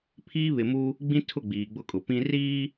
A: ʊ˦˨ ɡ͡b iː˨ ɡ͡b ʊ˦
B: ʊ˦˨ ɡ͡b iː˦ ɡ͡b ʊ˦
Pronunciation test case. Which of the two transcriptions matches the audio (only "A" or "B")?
A